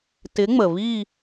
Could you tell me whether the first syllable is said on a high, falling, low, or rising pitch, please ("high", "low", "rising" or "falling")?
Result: rising